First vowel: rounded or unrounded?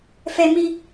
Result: unrounded